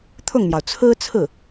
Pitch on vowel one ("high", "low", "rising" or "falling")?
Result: falling